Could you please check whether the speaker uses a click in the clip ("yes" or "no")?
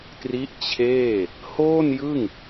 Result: no